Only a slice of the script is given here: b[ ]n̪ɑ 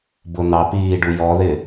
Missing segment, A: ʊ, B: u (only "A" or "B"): A